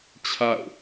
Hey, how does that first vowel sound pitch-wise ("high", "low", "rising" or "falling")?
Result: falling